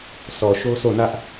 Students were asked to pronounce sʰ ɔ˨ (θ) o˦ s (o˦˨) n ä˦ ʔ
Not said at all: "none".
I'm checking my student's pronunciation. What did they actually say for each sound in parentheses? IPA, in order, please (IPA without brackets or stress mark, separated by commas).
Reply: ʃ, o˦˨